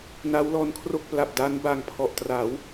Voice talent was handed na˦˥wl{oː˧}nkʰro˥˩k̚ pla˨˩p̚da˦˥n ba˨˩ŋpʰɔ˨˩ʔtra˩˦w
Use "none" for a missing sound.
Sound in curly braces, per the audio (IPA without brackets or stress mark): ɔː˧